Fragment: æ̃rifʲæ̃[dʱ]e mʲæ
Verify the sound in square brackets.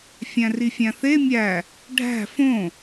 incorrect: θ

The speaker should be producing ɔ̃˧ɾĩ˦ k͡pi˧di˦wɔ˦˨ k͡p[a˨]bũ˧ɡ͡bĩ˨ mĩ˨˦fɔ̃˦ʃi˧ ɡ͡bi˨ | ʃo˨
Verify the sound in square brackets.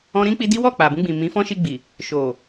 correct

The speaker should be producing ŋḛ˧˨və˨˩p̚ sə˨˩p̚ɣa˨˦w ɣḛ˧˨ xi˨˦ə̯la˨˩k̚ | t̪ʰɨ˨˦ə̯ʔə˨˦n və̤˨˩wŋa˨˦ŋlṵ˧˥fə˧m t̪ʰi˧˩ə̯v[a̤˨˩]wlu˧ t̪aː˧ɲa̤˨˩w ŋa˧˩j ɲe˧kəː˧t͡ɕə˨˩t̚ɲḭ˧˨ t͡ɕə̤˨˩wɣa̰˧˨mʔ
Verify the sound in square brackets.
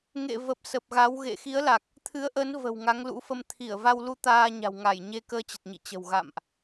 incorrect: a˧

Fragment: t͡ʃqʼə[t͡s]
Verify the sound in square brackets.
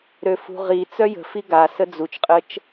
incorrect: t͡ʃ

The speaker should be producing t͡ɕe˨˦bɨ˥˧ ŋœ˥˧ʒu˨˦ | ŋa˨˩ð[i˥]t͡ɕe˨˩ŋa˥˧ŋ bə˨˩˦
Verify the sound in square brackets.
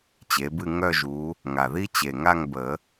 correct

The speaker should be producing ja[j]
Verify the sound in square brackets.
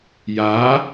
incorrect: none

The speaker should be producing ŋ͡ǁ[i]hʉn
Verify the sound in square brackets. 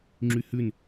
incorrect: y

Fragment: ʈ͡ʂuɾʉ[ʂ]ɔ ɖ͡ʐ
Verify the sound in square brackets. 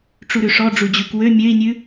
correct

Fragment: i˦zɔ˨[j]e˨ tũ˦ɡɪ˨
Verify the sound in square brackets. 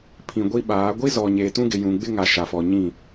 incorrect: ɲ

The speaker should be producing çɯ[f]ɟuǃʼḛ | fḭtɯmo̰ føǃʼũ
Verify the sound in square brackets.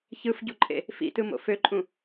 correct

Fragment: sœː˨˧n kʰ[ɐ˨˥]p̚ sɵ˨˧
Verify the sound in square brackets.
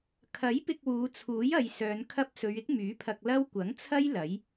incorrect: ɐ˥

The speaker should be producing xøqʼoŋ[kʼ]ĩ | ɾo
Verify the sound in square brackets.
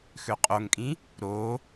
correct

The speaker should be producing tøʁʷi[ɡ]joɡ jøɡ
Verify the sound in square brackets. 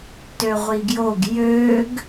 correct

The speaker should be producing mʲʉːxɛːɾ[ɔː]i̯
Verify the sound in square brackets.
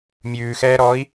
correct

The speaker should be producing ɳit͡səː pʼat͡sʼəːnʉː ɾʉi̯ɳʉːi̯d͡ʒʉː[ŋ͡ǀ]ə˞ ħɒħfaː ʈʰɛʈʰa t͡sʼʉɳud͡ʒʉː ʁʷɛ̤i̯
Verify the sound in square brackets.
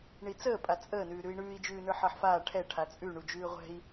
incorrect: n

